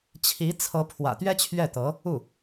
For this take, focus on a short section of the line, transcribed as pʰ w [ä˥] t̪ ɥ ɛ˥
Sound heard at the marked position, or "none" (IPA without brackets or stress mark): ä̰˨˩